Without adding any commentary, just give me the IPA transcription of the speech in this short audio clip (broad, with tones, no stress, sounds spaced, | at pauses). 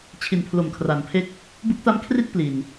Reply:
t͡ɕʰ i˨˩ n pʰ l o˨˩ m kʰ r a˩˦ n pʰ e˦˥ k̚ | b u˦˥ k̚ t a˦˥ m kʰ r i˥˩ t̚ p l i˧ n